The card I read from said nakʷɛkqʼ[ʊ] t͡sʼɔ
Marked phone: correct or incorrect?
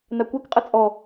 incorrect